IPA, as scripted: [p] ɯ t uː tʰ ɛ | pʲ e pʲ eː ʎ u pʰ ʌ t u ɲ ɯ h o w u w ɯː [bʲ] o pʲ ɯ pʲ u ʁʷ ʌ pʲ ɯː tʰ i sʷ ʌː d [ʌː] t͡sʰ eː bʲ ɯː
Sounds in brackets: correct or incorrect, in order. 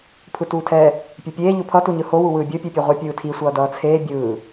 incorrect, correct, correct

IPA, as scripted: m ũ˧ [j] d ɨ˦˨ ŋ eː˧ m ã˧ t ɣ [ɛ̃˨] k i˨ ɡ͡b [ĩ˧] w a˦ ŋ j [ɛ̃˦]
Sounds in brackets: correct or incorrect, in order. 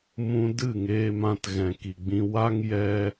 incorrect, correct, correct, incorrect

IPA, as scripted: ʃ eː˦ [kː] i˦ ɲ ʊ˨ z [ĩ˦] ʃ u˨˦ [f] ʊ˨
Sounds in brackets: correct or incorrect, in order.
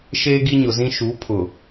incorrect, correct, incorrect

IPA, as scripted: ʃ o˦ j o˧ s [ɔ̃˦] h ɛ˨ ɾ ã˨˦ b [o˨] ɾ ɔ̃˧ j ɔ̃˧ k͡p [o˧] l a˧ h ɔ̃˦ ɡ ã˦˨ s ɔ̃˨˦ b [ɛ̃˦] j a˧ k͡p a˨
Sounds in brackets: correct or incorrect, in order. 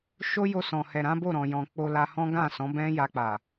incorrect, incorrect, correct, correct

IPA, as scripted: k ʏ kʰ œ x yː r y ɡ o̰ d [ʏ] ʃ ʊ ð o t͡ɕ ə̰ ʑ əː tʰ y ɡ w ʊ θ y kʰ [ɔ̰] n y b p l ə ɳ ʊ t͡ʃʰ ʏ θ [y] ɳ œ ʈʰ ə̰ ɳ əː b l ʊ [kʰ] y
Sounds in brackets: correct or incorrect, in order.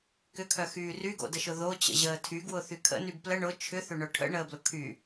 incorrect, incorrect, incorrect, correct

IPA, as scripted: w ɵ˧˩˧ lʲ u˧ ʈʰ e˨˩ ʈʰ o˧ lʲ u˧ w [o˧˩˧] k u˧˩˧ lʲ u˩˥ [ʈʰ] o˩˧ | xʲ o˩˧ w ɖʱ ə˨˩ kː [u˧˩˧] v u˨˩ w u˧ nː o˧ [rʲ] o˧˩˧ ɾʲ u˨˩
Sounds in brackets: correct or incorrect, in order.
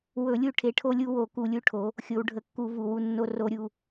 correct, correct, correct, incorrect

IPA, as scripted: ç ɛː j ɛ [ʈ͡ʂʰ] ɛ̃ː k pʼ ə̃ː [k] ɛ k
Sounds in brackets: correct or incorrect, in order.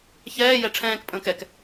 correct, correct

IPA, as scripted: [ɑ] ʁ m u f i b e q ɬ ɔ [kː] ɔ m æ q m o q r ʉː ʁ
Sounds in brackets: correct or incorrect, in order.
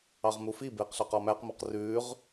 correct, incorrect

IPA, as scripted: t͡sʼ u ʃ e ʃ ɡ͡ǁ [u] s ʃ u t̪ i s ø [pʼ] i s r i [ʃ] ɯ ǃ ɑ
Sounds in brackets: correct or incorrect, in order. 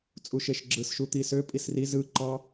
incorrect, correct, incorrect

